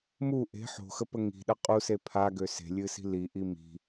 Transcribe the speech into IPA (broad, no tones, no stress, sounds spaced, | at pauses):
m u ʔ e̤ ħ o̤ x ə p ə ŋ i̤ ɗ ə qʼ u s e pʰ a ɡ ø s e̤ lʲ ɨ s i̤ l i ʔ i m i̤